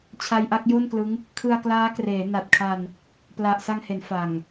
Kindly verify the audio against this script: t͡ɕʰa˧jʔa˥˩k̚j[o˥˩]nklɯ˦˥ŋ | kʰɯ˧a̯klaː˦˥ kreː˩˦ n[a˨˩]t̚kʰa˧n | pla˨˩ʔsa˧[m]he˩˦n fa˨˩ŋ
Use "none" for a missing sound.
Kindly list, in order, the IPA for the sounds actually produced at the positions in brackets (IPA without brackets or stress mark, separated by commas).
o˥˩, a˨˩, ŋ